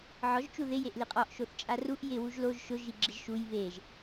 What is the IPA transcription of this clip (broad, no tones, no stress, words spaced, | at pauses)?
ʕɔʒ t͡ʃuðɪ jeʔliqʼɔʔ ʃoθt͡ʃʼaruʔ jɪ wuʒloʒ ʃʊ ʒiɡ͡ǁɪʒʃuj βeʒ